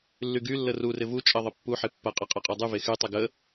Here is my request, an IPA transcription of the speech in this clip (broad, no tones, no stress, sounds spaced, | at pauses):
lː y ɡ y lː ə r u r ɪ v u t͡ʃʼ ɐ ðˤ ɪ pː u ħ e pː ɐ qʼ ɐ qʼ a qʼ o dˤ y v e x y tˤ ɪ ɡ ə